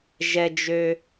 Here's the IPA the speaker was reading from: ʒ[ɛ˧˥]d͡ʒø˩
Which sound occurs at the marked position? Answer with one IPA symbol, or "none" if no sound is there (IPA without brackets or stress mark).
ɛ˩